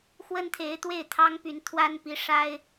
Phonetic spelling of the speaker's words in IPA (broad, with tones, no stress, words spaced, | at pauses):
xwə˥nt̪ʰe˧˥ɪ̯ t̪we˥˩ɪ̯t̪ʰɑ˥ŋpy˧˥n t̪ʰwa˥npi˧˥ʂa˥ɪ̯